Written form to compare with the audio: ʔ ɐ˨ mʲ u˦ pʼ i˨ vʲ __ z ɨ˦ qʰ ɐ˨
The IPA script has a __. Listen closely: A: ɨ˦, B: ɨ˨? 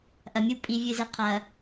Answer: B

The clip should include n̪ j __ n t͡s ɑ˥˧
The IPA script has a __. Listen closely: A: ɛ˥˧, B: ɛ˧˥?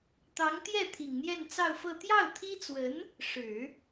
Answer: A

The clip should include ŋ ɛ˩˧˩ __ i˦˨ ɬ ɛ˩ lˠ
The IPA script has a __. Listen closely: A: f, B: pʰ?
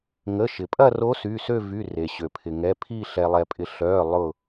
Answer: B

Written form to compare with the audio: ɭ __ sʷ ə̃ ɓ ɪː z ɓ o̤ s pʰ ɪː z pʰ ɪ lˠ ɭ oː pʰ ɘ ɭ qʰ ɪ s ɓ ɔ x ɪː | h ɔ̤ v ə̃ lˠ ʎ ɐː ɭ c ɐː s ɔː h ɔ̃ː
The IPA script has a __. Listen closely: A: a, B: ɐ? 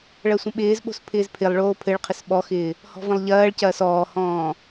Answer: B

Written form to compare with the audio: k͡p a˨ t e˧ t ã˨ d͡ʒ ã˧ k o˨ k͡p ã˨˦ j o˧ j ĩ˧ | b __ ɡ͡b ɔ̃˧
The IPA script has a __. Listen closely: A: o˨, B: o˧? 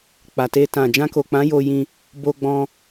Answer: B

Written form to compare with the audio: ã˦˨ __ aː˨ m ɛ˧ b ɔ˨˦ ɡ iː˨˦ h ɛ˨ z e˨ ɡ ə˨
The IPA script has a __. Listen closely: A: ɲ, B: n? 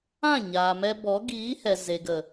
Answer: A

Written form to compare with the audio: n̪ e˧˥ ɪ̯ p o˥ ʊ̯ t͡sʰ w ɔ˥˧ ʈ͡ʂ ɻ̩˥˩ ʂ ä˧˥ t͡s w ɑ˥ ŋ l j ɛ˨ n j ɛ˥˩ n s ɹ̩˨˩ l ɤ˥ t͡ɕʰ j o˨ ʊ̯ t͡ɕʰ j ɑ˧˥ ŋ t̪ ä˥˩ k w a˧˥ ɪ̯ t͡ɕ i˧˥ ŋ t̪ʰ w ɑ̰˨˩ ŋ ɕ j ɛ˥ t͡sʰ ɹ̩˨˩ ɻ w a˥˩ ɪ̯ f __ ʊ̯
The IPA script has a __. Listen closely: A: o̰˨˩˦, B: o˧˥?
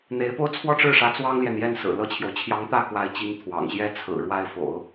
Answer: A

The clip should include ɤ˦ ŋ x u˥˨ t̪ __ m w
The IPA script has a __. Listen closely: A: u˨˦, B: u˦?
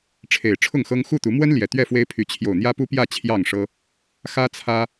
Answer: A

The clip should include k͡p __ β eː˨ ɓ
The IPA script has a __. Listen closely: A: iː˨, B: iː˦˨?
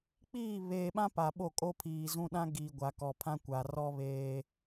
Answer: B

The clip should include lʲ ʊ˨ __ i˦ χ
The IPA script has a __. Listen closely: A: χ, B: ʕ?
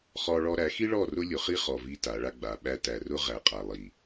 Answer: A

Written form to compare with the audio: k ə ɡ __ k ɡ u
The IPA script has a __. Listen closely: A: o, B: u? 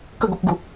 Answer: A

